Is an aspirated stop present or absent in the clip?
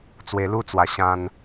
absent